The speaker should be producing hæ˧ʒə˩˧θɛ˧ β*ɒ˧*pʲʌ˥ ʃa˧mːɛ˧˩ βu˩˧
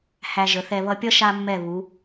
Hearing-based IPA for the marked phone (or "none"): ʌ˧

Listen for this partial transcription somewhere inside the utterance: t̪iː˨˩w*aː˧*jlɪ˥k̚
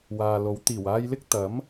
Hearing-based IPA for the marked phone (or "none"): aː˧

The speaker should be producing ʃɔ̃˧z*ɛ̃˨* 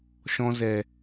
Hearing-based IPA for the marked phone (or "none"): ɛ˨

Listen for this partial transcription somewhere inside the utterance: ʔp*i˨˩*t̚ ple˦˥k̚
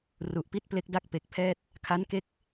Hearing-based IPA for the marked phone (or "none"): i˥˩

